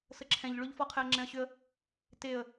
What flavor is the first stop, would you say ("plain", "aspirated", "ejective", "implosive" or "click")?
click